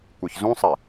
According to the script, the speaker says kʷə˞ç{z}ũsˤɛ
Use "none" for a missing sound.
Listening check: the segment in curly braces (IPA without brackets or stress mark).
z